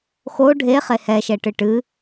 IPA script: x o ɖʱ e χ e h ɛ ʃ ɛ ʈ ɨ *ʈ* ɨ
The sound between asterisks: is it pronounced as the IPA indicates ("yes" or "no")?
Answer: yes